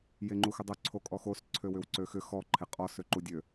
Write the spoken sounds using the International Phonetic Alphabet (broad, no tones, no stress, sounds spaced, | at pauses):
j e ŋ͡ǃ u x ʏ dˤ ø ǀʰ o kʼ ɔ x o s ǀʰ ø w ʏ w ǀ ø x ʏ x ɔ ǃʰ e qʼ ɔ s ø ǃ u dʲ ø